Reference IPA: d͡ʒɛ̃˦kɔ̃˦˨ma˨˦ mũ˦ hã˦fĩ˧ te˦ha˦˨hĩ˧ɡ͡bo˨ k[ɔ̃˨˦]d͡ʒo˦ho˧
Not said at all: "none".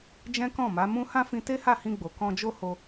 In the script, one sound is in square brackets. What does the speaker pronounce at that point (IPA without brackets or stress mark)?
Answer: ɔ̃˧